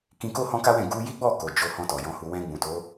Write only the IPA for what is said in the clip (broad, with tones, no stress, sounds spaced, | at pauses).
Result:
k ĩ˧ k o˦ h ɔ̃˦ k a˦ w ɛ̃˦˨ ɡ u˧ j i˦ ɡ͡b ɔ˦˨ k o˨ d͡ʒ o˧ h ɔ̃˧ t ɔ˨ j ɔ̃˨˦ h u˧ w ɛ̃˧ ɡ͡b ũ˨ t o˨˦